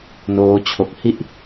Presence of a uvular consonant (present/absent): absent